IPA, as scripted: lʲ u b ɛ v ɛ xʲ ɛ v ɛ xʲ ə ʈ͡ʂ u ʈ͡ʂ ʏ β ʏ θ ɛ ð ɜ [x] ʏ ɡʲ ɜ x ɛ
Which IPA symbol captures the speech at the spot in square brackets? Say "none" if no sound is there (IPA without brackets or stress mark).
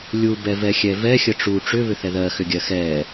x